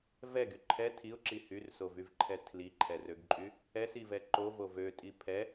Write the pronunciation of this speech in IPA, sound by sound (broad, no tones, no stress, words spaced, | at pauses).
vɛɡy ǃʰɛ tʰiʊ̯ǁi hyrsovyvǃʰɛ tʰliǃʰɛrøɡǃʼy | ɛsivɛ ǃovo vøtʼi pʰɛ